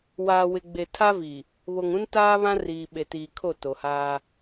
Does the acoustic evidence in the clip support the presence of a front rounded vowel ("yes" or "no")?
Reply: no